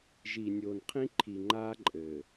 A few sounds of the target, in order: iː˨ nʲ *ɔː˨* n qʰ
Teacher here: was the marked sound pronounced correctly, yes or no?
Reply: no